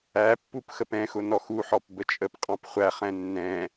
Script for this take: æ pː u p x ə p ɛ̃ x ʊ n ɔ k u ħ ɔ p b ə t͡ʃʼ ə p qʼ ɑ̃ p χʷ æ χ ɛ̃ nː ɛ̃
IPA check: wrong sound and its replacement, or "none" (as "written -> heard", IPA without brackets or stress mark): k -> x